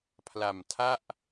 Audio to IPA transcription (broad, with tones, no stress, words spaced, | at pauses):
pʰla˨˩mtʰa˥˩ʔ